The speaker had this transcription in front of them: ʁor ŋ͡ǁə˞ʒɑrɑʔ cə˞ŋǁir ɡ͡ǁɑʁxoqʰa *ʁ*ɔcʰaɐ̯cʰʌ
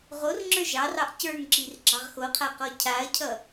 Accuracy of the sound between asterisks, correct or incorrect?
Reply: incorrect